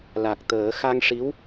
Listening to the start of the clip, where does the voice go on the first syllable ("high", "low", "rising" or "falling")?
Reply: low